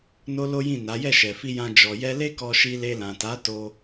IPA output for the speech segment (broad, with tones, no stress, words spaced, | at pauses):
no˦lo˦jĩ˦˨na˨˦ jɛ˦˨ʃɛ˨fi˧jã˧ d͡ʒɔ˨ jɛ˧le˦ kɔ˧ʃi˧le˧lã˨ ta˨˦to˧